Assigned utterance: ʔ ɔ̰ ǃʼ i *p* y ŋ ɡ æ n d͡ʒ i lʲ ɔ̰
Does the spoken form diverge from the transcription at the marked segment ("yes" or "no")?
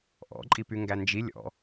no